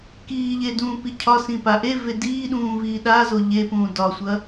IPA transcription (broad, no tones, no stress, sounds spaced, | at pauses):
k iː ʎ e d ũː p i cʰ ɒ s ĩ p a ʔ e v e d iː ɗ ũː v iː ɗ a z o ʎ e p ũː d ɒ sʷ ɐ